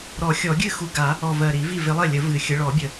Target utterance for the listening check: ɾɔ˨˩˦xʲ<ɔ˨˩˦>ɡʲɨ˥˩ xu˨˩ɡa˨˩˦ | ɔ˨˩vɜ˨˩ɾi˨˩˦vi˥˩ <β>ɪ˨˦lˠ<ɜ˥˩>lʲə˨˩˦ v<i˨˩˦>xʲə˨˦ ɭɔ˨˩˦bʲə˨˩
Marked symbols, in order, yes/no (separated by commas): yes, no, yes, no